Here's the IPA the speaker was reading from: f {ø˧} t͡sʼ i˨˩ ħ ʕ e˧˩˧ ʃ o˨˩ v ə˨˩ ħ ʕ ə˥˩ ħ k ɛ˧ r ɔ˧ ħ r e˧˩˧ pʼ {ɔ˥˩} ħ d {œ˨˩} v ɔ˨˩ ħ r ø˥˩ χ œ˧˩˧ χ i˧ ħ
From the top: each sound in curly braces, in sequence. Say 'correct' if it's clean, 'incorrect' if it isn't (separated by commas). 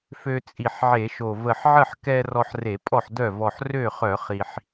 correct, correct, incorrect